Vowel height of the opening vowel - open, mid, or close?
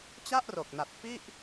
open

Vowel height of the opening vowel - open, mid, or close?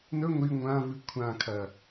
mid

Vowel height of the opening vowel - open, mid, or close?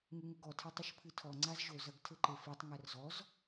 close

